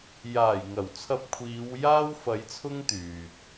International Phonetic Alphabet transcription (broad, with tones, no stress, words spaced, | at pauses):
jaː˨˩jŋɐ˨˩wt͡sʰɐ˧p̚kʷʰiː˨˧w jaː˥wfɐ˨˧j t͡sʰʊ˥ŋt̪yː˨t̚